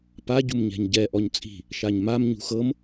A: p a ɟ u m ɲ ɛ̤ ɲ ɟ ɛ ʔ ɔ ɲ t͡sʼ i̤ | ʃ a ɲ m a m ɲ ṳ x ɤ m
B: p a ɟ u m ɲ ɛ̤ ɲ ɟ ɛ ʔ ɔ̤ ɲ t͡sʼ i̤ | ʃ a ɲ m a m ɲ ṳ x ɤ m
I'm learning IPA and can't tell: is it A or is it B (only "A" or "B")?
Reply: A